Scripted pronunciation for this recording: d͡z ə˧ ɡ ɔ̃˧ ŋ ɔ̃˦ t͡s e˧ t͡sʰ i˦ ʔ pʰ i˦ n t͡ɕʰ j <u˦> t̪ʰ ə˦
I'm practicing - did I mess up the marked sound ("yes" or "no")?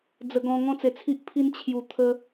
yes